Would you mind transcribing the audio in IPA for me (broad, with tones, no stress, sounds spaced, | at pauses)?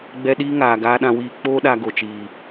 ɡ͡b ɛ˧ ɗ iː˦ ŋ aː˨ ɡ aː˧ ɗ ã˧ w iː˧ k͡p oː˦ ɗ a˧ ɡ o˨ t͡ʃ iː˨